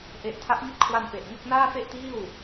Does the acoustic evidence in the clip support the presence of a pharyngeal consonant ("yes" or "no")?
no